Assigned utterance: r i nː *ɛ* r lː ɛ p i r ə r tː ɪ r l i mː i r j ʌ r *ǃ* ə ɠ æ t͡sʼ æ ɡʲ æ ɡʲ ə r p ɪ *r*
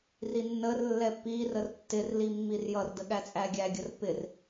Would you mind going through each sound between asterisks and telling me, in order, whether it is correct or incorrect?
incorrect: ə, incorrect: d, correct

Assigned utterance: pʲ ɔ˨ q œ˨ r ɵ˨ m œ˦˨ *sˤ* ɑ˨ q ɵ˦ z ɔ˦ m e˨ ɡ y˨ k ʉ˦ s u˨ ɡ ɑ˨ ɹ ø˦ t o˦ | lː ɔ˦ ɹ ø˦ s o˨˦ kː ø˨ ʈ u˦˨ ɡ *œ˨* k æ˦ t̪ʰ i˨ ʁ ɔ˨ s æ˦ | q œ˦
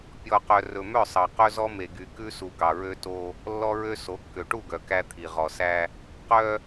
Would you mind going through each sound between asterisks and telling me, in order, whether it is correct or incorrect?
correct, correct

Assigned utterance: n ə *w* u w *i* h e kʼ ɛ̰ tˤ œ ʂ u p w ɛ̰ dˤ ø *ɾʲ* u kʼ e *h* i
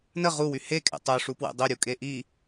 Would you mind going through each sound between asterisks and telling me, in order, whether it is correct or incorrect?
incorrect: ʁ, incorrect: y, correct, incorrect: ʔ

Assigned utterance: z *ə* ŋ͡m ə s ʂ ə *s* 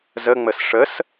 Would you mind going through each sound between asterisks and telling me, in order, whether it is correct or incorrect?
correct, correct

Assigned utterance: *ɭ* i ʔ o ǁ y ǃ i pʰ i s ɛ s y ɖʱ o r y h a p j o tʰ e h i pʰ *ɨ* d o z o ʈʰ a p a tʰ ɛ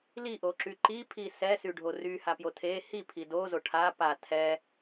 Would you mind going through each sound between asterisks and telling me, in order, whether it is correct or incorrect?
incorrect: l, incorrect: i

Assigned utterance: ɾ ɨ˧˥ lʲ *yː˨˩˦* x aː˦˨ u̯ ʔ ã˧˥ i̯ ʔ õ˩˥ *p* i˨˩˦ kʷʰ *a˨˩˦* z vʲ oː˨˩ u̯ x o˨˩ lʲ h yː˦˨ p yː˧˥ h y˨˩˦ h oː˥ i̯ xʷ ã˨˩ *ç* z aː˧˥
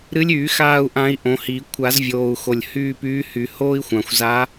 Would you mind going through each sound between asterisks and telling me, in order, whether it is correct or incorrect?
correct, incorrect: h, correct, incorrect: xʷ

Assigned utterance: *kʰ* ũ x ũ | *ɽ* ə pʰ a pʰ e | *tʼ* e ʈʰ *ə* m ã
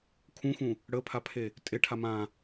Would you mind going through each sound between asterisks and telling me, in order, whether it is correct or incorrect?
correct, correct, correct, incorrect: a

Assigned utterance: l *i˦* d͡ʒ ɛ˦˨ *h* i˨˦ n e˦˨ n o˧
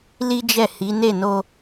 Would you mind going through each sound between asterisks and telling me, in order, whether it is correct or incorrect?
correct, correct

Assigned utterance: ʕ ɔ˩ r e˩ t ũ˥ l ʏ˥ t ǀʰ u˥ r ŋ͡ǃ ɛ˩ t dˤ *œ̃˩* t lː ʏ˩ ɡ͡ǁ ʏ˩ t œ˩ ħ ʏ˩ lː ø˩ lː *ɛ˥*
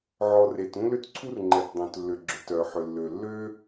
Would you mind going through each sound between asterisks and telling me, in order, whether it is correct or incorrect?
correct, incorrect: ø˥

